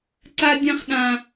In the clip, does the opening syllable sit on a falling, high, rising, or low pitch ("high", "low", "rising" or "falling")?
high